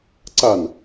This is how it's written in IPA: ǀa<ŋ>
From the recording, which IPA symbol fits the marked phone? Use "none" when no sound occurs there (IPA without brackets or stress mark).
n